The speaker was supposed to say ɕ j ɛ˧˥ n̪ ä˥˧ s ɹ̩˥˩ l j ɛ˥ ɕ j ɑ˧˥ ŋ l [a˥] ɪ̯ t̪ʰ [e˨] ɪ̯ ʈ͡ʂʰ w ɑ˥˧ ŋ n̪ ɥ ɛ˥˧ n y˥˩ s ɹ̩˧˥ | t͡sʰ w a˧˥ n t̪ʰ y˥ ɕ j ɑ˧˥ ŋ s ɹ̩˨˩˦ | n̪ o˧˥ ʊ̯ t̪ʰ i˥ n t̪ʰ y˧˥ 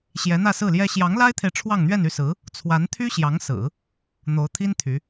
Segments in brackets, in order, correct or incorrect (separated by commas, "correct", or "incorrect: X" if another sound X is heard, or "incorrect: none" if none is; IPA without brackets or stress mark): correct, correct